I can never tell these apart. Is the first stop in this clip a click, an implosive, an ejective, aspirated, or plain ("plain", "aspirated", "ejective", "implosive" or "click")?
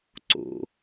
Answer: click